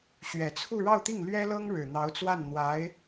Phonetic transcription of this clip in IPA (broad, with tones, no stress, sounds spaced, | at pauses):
ɕ ɥ ɛ˨˩ t͡sʰ u˥˧ ɻ ɑ˥˧ ʊ̯ t̪ i˥˩ ŋ l ɥ ɛ˥ l ɤ˥ ŋ ɻ ɻ̩˨˩ n̪ ɑ˧˥ ʊ̯ t͡s w a˥˩ n n̪ w a˧˥ ɪ̯